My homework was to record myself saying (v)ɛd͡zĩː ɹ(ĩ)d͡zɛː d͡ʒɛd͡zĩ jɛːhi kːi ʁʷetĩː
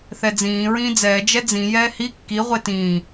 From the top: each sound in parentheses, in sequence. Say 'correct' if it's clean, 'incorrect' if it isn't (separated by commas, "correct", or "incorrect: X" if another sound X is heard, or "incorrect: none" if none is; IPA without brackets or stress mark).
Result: incorrect: θ, incorrect: ĩː